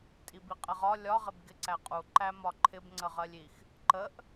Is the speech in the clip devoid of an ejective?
no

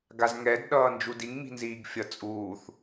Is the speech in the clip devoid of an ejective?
no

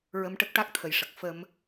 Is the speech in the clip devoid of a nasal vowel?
yes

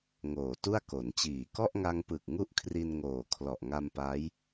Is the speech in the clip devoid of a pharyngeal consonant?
yes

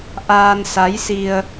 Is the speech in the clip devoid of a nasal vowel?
yes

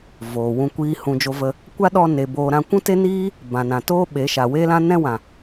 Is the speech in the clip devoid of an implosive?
no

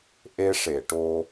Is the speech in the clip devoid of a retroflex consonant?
no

